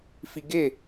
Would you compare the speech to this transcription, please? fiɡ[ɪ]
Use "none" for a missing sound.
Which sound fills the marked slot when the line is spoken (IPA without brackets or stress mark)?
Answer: ɪ